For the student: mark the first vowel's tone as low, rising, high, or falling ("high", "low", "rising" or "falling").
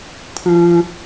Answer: high